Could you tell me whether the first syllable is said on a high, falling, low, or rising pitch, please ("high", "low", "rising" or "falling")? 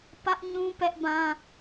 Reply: high